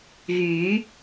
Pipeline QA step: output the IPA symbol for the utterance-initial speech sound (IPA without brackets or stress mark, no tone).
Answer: ɣ